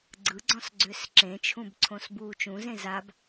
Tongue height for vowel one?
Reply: high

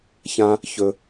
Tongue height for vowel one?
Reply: low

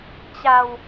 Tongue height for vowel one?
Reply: low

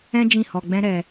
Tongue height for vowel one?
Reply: mid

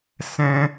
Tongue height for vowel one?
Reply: mid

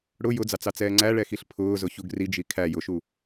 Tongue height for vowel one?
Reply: high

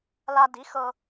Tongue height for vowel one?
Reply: low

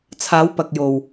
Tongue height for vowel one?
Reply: low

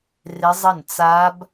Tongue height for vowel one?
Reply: high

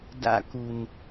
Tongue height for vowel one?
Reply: low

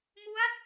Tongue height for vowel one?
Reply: high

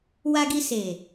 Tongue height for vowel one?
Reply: low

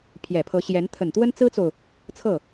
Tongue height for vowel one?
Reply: mid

